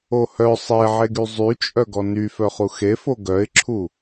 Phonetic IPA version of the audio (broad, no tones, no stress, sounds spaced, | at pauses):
o h œ sˤ e ʕ e ɡ y zˤ y t͡ʃʼ œ ɡ ɔ n y f œ χ u x e f o ɡ œ ɪ̯ ǁʰ u